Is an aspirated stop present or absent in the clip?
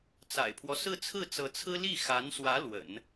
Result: present